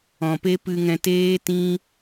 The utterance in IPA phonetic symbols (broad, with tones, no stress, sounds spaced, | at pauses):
ɔ̃˨ p e˦ p ɨ˧ ŋ ɛ̃˧ t eː˦ t ĩ˦